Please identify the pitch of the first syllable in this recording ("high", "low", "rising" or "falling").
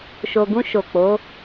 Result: low